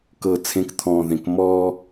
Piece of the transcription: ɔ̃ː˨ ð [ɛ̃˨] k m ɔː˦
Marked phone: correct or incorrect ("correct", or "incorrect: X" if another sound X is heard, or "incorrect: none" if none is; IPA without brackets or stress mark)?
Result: incorrect: ẽ˨